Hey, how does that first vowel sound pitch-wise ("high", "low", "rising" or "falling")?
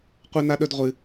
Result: high